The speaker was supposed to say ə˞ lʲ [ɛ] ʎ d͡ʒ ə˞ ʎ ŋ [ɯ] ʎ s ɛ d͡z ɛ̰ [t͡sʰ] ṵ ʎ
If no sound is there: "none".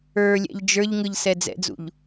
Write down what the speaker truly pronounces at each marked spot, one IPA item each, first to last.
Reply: ɛ̰, ɯ, d͡z

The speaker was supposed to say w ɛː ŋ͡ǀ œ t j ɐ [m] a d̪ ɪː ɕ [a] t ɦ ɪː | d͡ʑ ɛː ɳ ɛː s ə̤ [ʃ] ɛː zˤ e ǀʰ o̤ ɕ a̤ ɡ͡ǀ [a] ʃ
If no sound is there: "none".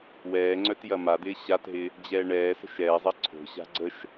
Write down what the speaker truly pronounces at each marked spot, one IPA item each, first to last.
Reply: m, a, ʃ, ə

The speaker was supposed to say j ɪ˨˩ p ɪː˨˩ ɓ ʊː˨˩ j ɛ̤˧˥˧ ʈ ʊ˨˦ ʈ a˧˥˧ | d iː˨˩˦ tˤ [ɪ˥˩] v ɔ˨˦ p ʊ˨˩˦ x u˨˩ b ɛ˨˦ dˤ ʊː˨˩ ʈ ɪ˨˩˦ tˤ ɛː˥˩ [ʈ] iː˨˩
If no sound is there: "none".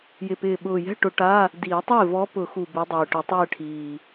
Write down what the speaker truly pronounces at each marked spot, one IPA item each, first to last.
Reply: ɪː˥˩, ʈʰ

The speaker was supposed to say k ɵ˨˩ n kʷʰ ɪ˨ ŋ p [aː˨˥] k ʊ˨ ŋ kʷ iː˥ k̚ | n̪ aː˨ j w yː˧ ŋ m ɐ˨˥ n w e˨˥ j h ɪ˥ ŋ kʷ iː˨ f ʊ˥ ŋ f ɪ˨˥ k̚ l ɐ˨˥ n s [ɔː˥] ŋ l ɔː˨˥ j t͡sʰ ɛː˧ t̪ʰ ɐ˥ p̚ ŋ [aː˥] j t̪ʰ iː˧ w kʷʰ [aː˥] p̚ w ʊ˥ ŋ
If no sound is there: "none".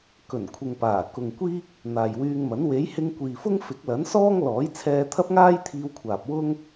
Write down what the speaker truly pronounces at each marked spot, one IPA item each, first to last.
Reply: aː˨˩, ɔː˥, aː˥, aː˨

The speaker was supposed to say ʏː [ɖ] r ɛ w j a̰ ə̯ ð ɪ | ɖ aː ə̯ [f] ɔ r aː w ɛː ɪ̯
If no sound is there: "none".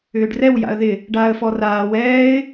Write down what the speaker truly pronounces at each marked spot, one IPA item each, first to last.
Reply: ɖ, f

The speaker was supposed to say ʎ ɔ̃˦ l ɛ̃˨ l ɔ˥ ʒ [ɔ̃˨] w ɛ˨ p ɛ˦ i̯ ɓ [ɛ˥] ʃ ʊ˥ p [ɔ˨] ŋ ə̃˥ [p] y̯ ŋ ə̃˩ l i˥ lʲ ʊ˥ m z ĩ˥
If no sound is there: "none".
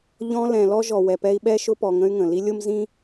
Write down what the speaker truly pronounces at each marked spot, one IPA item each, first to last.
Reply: ɔ˨, ɛ˥, ɔ˨, none

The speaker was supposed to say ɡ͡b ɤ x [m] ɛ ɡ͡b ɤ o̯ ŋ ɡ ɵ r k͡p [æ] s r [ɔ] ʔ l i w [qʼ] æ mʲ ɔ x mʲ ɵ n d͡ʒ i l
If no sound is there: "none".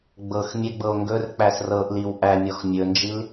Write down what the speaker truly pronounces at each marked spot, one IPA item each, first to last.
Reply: mʲ, æ, ɤ, ʔ

